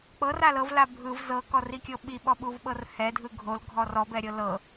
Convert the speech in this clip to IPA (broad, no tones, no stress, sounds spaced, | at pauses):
k͡p ɤ r a l ɤ v l a bʱ ɯ v z ɤ k ɔ r i kʲ ɤ ɓ i ɓ ɔ ɓ u v ɓ ɤ r h ɛ dʱ ɯ ɡʱ o l ɡʱ ɔ r ɔ b ɛ ɾʲ ɤ l ɤ